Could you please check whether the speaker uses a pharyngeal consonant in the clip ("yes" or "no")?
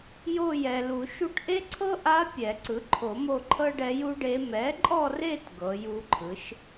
no